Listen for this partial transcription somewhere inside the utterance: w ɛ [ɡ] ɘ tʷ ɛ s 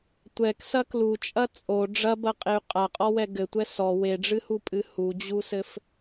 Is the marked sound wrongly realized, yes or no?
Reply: no